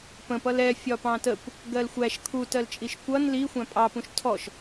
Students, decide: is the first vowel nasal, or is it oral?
nasal